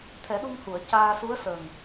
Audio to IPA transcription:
t̪ʰ ɛ˨˩˦ ɗ u˧ ŋ h u˨˩˨ ə̯ c aː˧ s u˧˥ ə̯ s ə˨˩ ŋ

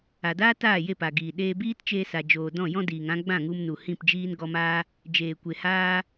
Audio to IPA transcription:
a˨ d aː˦ t aː˦˨ j e˦˨ p a˨ ɡ iː˨ ɗ eː˧ b iː˦ t t͡ʃ eː˧ s a˨ d͡ʒ oː˨ d ɔ̃˦˨ j ɔ̃˦ d iː˨ ŋ ã˦ ɡ͡b ã˦˨ ŋ u˧ m n u˨ h ĩ˦˨ p d͡ʒ iː˦ n ɡ ɔ˧ m aː˦ | d͡ʒ eː˨ kʷ e˨ h aː˧

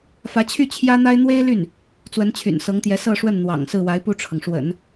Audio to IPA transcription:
f ä˧˥ t͡ɕʰ y˥˩ t͡ɕʰ j ä˥ n̪ a˥ ɪ̯ n̪ w e˥ ɪ̯ l y˥˩ n | t͡s w ə˧˥ n t͡ɕʰ y̰˨˩ n s ɤ˧˥ ŋ t̪ j ɛ˧˥ s ɤ˥˧ ʂ w ə˥˩ n n̪ w ɑ̰˨˩ ŋ s ɹ̩˥˩ w a˧˥ ɪ̯ p u˥˩ ʈ͡ʂʰ ɤ˩ ŋ ʂ w ə̰˨˩˦ n

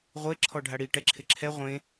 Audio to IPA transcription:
ʁʷ e ǁʰ ɔ ɖʱ a ɽ i ʈ ɛ ǁʰ ɪ ǁʰ ɛ ʁʷ ẽ

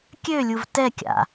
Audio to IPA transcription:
kʲ ø lʲ u v t ɛ kʲ a̰

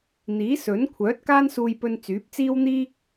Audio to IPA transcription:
n̪ iː˨˥ s ɵ˨˥ n kʷʰ œː˨˥ t̚ k aː˥ n s uː˧ j p ɵ˧ n t͡s yː˨˥ p̚ t͡s iː˥ w n̪ iː˥ k̚

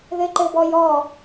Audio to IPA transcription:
ð ɘ ǃ ɘ b ɔ j ɔ

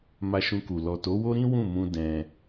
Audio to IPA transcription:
m a˧ ʃ ũ˧ k u˨ l ɔ˨ t o˨˦ w o˦ ɾ ĩ˦ w ũ˦˨ m ũ˧ d ɛ̃˧

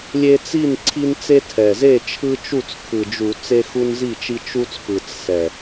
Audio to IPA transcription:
lʲ e˦ t͡s i˥˩ n ǀʰ i˦ n t͡s e˦ tʰ ɛ˨˩ z e˥˩ t͡ʃʰ ɯ˦ t͡ʃ u˥˩ t͡s kʰ ɯ˨˩ d͡ʒ u˧˩˧ t͡s e˦ x u˦ n z i˥˩ t͡ʃ i˦ t͡ʃ u˦ t͡s p ɯ˨˩ t͡s s ɛ˨˩

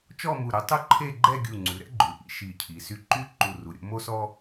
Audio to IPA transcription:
t͡ʃ ɔ˥˧ m u˧˩ ɾ ø˧ tˤ u˥ ǃʰ e˥˧ ɡ͡ǃ ɛ˥˧ ɡʲ u˧˩ ŋ͡ǀ ʉ˩˧ ɾ ɛ̰˥ ɡ͡ǃ ʉ˩˧ ʔ ḭ˧ ʃ i˧˩ cʰ i˩˧ s y˧˩ ǃ y˥ ǃ u˧˩ r u˩˧ ɾʲ o̰˧ m o˥ s ɔ˥

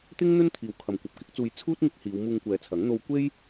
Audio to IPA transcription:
t̪ ɪ˥ ŋ n̪ ɵ˥ n t̪ʰ iː˨ w kʰ ɐ˨ m kʷ ɐ˨ p̚ k ɪ˥ k̚ t͡s uː˧ j t͡sʰ uː˥ t̚ ŋ ɪ˧ k̚ h iː˨˧ w m uː˧ ŋ kʷ ɛː˨˧ t͡sʰ ɐ˨˥ ŋ n̪ o˧ w kʷ e˥ j

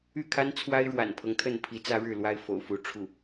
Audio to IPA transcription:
y˥˩ kʰ a˥ n t͡sʰ w a˥ ɪ̯ ɻ w a̰˨˩ n pʰ ɤ˦ ŋ t̪ʰ ə˥˩ n pʰ i˧˥ t͡s ä˥ ɻ ɻ̩˥˩ l w a˥ ɪ̯ f o̰˨˩ ʊ̯ f u˧˥ ʈ͡ʂʰ u˥˩

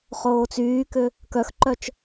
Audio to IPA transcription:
χ oː t͡s yː k ʏ | k œ x ǃ œ t͡ʃ

